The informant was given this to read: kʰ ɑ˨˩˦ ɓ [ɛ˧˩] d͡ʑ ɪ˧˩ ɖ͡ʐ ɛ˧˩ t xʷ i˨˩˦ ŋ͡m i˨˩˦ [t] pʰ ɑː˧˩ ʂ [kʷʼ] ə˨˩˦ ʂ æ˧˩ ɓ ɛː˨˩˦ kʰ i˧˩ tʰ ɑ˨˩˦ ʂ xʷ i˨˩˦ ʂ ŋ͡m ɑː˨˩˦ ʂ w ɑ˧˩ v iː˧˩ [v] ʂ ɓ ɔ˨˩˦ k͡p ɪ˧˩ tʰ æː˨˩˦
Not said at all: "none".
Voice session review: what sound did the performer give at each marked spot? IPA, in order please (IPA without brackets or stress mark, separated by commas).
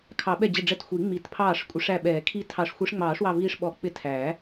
ɛ˧˩, t, kʷʼ, none